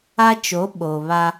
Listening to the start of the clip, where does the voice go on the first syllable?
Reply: high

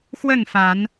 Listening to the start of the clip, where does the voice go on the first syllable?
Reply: falling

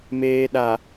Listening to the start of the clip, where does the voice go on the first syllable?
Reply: low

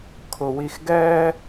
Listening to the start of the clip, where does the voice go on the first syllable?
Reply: low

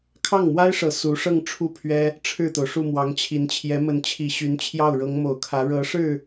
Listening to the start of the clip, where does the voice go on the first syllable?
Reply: falling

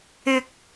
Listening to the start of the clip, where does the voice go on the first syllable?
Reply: high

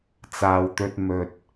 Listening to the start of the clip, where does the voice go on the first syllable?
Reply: low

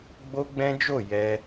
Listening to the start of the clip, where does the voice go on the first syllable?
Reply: high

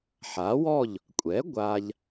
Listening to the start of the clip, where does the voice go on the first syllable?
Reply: rising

